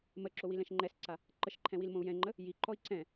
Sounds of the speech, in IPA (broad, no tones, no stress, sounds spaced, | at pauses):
m ə ǁ o w i l ɛ̃ ʃ ŋ͡ǃ ɛ s ǀ a | ǃ ə ʃ ǃʰ ɛ̃ w i l m õ u̯ j ɛ̃ ŋ͡ǃ ə | j i ǃ ɔ i̯ ǀ ɛ̃